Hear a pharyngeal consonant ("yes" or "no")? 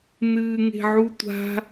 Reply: yes